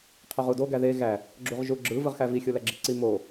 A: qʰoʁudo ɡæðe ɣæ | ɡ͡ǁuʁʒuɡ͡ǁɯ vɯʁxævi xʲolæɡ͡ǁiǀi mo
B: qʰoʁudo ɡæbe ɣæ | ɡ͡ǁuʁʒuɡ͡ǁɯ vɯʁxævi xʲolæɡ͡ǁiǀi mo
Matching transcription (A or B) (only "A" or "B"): A